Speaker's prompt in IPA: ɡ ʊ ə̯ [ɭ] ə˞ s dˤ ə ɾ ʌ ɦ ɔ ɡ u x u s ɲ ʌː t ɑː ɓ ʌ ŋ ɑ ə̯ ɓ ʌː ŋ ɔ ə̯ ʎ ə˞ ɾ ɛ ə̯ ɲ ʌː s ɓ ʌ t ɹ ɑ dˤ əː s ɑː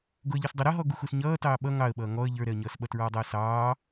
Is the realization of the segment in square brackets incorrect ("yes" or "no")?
yes